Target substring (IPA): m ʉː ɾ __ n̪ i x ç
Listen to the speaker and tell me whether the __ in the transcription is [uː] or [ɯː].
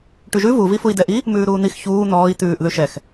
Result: uː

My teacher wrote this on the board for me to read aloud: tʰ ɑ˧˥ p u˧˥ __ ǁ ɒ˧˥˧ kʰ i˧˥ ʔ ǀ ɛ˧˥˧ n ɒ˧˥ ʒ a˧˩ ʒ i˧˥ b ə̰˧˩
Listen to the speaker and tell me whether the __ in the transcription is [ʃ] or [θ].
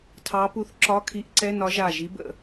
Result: θ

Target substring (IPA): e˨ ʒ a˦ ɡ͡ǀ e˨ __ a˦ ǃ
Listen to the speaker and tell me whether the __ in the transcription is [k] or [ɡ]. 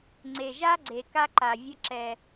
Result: k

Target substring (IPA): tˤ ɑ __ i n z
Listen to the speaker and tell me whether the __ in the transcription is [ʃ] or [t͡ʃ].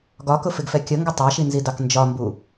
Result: ʃ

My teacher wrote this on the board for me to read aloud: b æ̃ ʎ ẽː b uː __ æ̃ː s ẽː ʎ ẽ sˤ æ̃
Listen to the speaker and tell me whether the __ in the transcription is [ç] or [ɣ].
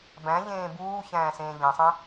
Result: ç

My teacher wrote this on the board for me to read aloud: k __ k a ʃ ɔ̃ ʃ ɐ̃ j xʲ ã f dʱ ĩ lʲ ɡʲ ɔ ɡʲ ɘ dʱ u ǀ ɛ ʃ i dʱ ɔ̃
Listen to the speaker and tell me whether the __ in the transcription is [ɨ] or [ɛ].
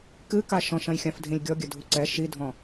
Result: ɨ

